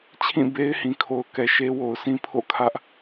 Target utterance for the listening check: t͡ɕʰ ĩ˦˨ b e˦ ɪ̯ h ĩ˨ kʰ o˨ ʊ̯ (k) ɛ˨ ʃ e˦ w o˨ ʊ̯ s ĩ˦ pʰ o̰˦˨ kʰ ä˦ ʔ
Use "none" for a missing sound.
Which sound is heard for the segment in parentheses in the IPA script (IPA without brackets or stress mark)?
k